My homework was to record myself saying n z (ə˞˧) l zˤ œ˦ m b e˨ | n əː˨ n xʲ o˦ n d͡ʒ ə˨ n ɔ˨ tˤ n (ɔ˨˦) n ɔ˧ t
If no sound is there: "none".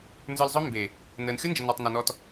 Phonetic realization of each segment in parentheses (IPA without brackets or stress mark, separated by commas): ə˞˧, ɔ˨